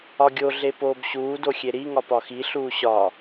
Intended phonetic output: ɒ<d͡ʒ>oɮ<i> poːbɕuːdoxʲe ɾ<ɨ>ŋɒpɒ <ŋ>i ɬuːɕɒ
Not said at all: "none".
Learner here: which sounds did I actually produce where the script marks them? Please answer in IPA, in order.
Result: ɡʲ, e, i, x

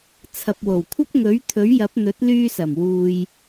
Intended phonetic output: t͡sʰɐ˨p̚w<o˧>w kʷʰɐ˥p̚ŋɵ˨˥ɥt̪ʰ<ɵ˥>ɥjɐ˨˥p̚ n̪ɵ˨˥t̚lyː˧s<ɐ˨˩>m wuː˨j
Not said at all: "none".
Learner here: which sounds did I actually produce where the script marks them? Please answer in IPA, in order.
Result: o˨˩, ɵ˨˥, ɐ˨˩

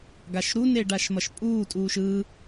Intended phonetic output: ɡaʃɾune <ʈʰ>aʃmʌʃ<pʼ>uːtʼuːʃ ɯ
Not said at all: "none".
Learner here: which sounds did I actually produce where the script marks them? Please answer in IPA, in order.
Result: ɖ, pʼ

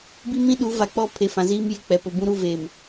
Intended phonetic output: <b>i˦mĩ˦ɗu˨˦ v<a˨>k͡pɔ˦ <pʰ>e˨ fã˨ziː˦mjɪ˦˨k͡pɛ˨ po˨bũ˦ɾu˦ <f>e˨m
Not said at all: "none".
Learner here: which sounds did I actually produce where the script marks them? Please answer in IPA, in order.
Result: b, a˨, pʰ, v

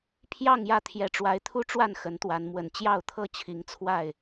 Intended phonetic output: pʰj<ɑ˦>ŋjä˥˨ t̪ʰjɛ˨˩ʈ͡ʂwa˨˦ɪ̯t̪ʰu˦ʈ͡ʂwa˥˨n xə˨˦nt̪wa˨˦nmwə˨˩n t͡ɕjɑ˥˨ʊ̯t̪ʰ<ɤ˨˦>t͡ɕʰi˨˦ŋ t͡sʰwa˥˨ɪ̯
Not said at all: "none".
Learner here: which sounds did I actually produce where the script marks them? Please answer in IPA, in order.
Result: ɑ˥˨, ɤ˥˨

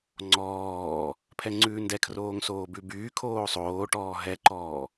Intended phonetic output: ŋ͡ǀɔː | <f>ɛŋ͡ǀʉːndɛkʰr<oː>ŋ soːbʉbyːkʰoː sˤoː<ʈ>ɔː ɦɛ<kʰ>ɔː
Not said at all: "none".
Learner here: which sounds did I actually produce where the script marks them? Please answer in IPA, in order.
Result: pʰ, oː, ʈ, ǃ

